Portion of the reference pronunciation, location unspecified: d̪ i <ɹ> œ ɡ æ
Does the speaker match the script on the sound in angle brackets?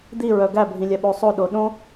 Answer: yes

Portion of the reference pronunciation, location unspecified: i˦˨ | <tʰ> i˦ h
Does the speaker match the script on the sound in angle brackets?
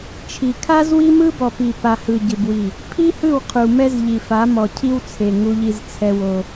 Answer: no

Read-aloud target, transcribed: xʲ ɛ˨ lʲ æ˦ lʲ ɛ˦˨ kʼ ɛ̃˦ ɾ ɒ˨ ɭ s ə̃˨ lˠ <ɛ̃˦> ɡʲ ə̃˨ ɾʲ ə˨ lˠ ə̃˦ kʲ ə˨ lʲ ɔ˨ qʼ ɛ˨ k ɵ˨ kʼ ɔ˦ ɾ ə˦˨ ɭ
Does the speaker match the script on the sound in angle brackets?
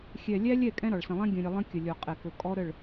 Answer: yes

